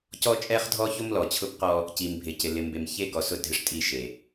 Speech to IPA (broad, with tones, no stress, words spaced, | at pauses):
cɔ˦t͡ʃʼɛ˦χdʱɔ˦ ço˦mlɔ˨t͡ɕʰʊ˦b qɔ˦ | ci˨mbʱɪ˨cɪ˨ lɪ˨mbe˨mçe˦ɡɔ˨ sʊ˦˨dʱɪ˦ʂtʼi˦˨ ʃe˨